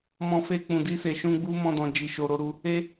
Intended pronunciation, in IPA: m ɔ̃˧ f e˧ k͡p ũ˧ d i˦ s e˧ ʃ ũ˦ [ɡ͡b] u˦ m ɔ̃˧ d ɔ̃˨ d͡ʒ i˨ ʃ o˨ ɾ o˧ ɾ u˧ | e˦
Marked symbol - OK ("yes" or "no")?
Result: yes